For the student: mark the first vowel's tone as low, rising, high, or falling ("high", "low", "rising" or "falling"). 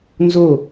falling